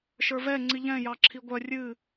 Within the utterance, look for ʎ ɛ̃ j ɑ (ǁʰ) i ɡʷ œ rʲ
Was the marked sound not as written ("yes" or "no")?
no